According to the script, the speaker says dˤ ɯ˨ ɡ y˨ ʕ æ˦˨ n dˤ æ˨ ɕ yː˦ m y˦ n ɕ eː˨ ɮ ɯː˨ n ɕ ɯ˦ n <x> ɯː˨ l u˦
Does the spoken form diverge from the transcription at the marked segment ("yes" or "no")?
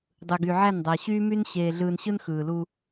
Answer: no